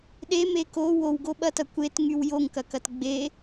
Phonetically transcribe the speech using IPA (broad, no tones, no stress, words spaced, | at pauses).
ɗeme ko wowɡoɓɐtɐ kʷetŋyw joŋkɐkɐt ɡ͡be